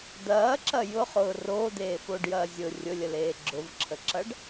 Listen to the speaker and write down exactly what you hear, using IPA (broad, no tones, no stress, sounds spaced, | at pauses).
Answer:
d̪ ɐː ǁ ɐ j ʊ χ ʊː r oː d̪ eː f o ɖ j ɐː zʲ ʊ rʲ ʊ lʲ ə l eː ɡ͡ǁ ʊ v ǁʰ ə ǁ ɐ ɖ